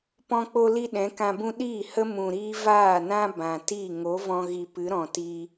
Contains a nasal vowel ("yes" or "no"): yes